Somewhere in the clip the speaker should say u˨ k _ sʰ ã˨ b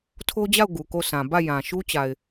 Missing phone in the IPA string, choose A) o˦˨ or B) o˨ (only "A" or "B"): A